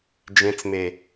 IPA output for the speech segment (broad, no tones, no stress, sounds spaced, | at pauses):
d͡ʒ ẽ t͡s m e